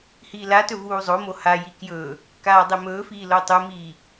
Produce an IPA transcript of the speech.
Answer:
h iː l a t ɵ v uː zˤ o m o h a j i k j ɵː | k aː dˤ e m ɵː f iː l o tˤ u m iː

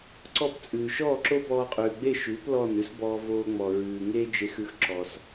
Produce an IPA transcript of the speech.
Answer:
ǀ ɔ˥˩ p t͡sʼ ʉː˩ ʃ ɔː˥˩ ǁ o˥ b ɔː˧ qʼ ʉː˩ ɡ͡b e˥˩ ʃ ʉː˩˥ p l ɔ˥˩ n ʉ˥ s b ɔː˧ v oː˧ ŋ͡m ɔ˩ ɹ ʉː˩ ŋ eː˥ d͡ʒ e˧ x ʉ˧ x ǁ ɔ˩ s

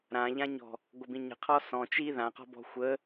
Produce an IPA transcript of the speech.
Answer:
ɾ ã ʎ ã ɲ ɔ̤ | ɡʷ ə b ĩ ɲ ə̤ qʰ ɔ s ɔ̃ t͡ʃ i ð ã q ɔ̤ b ɔ̤ xʷ ə

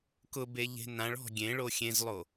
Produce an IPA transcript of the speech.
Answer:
k ʊ b e ʎ e̤ n ã ɭ ɔ̤ ɡʲ ẽ ɭ o xʲ ẽ z lˠ o

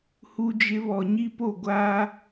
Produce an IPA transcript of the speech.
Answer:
h u˦ d͡ʒ ɪ˦ β ɔ˨ ɲ i˦ p o˦˨ ɡʷ aː˦

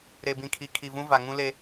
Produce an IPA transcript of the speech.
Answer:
ɾ e˨ b ĩ˨ kʰ i˨ kʰ i˨ v ũ˦ v a˨ ŋ ũ˦ l e˦

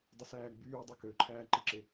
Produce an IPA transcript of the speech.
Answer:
dˤ i s æː ɡ͡b yː dˤ ø k ø ǃʰ æː ǃ i ǁ e

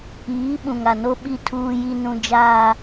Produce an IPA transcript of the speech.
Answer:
iː˨˦ ɓ ũ˨ ŋ a˨ n o˦ ɓ i˦ tʰ uː˦ j i˦ n ũ˦ d͡ʒ aː˦

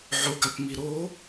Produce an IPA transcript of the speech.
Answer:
ʕ o ɡ a p m i ɾ oː

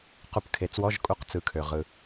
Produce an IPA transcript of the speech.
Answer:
q u˧˩ p kʰ e˩˥ t͡s w ɔ˧˥˧ ʒ kʼ u˧˥˧ q t͡s ɯ˩˥ kʰ ø˩ ʁ ɯ˩

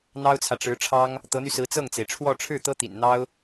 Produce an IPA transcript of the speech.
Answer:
n̪ ɑ˥ ʊ̯ t͡sʰ ä˨ ʈ͡ʂ ɻ̩˧˥ ʈ͡ʂʰ ɑ˥ ŋ | t̪ ɤ˧˥ n̪ y˧ s ɹ̩˧˥ t͡s ɤ˥˩ ŋ t͡s e˩ ɪ̯ ʈ͡ʂʰ w ɔ˥˧ ʈ͡ʂʰ ɻ̩˥˩ t̪ ɤ˥ t̪ ḭ˨˩ n n̪ ɑ˥ ʊ̯

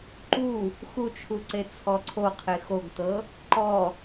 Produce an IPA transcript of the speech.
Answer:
ǃ u | x u t͡ʃʰ u ǀ e t͡sʰ ɔ ǀʰ o qʰ e x o ɡ t ɤ | ǃ ɔ

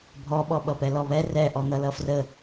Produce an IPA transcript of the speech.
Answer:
bʱ ɔ ɓ ɔ ɓ ʌ p ɛ l ɔ β ɛ r ɛ ʔ ɔ n̪ ʌ l ʌ f r ə

